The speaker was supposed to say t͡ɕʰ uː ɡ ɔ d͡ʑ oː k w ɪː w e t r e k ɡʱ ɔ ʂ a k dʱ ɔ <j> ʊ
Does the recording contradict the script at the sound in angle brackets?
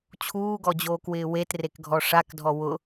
yes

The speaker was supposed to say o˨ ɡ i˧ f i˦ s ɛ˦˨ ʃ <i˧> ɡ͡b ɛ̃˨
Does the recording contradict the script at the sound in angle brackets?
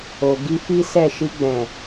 no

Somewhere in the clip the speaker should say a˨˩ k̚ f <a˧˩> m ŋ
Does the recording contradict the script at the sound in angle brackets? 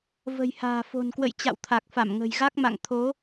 no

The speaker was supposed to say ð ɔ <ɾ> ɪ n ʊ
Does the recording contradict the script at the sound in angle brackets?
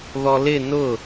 yes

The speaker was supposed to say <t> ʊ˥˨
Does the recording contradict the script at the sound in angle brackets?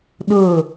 yes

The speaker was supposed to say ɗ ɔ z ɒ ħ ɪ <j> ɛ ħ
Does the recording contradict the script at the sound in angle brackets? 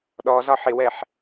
yes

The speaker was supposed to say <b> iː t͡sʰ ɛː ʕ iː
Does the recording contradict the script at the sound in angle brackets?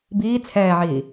no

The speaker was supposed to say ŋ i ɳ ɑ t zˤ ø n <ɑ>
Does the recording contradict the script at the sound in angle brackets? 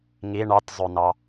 no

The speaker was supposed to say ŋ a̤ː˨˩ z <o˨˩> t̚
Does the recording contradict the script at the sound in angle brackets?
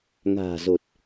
no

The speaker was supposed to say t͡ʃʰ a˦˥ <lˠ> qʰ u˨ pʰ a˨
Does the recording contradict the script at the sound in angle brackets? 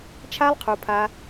no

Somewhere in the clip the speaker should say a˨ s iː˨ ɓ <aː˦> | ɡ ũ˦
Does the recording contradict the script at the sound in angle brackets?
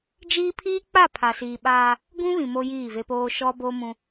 no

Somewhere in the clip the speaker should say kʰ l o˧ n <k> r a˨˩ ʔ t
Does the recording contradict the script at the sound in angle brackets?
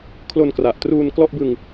no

